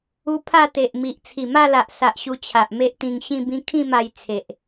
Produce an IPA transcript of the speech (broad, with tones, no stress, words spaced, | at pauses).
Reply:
u˦ pʰa˥˧t̪e˨ʔmi˨ʔ t͡sʰi˨˩ma˥˧la˨ʔsa˨ʔ ɕu˧t͡ɕʰa˨ʔme˦ʔt̪ĩ˧ŋ ɕĩ˥˧bĩ˦ kʰĩ˥˧ma˧j t͡sʰe˨ʔ